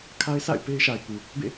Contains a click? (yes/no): no